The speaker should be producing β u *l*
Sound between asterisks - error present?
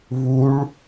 yes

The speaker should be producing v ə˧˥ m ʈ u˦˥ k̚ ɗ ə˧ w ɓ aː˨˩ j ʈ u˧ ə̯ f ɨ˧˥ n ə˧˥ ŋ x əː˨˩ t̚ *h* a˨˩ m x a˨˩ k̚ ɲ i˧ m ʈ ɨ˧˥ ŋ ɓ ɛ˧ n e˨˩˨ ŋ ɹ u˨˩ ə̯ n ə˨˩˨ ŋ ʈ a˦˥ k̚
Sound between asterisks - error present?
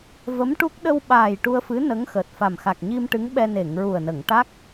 yes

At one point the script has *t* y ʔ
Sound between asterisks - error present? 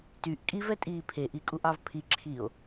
no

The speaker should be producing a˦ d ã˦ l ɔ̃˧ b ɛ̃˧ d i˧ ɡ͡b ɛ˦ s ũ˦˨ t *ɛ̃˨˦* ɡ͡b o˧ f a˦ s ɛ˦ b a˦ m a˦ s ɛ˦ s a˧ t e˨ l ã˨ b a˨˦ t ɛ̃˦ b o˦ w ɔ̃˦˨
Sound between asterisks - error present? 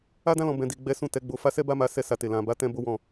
yes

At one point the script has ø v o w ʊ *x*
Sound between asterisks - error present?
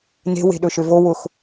no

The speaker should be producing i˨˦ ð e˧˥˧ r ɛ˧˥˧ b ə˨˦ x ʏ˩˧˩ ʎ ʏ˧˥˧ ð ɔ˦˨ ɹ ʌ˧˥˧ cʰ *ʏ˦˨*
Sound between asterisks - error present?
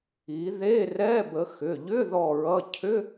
yes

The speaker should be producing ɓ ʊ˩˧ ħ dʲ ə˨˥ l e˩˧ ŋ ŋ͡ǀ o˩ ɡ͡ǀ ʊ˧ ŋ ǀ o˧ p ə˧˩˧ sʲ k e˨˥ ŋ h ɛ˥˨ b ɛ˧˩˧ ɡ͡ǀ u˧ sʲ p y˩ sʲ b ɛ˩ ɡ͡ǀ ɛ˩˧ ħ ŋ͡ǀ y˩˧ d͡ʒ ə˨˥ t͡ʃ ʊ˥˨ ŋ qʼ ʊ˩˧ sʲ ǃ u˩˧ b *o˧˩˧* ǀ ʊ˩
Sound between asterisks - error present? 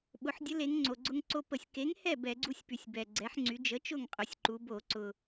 no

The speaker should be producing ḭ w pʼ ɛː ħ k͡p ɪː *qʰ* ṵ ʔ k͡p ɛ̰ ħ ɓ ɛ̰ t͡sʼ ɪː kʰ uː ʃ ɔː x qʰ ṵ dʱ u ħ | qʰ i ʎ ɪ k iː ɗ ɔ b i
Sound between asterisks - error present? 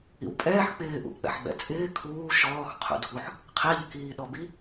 yes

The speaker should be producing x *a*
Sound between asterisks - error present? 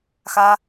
no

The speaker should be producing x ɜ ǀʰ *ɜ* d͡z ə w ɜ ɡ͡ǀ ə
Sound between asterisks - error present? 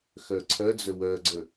no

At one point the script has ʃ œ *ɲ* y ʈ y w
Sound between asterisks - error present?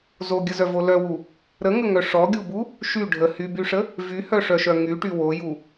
yes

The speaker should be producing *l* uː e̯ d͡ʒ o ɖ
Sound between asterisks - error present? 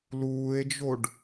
no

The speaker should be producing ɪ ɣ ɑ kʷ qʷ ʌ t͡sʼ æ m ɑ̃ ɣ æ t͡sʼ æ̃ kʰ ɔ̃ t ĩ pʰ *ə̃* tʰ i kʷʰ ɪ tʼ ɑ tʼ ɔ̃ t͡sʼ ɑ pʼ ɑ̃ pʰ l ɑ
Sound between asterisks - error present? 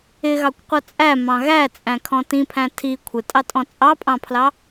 yes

